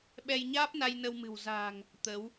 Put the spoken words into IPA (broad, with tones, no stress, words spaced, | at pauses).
ɓɛ˧jɲaː˦˥p̚na˧j nə˧w mɨ̤˨˩wza̤ː˨˩ŋ | t̪ə˨˦w